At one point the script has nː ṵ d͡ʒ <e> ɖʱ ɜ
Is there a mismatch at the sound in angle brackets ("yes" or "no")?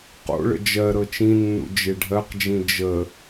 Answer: no